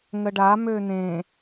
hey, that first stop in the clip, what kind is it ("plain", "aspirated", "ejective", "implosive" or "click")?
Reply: plain